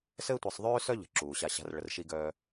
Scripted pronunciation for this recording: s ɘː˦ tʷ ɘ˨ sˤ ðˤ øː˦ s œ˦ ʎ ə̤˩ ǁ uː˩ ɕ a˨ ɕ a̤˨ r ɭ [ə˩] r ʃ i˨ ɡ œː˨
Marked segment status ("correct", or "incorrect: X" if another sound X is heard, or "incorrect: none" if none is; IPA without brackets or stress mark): correct